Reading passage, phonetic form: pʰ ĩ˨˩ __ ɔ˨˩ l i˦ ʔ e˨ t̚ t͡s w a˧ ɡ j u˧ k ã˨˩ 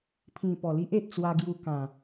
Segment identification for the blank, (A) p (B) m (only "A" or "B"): A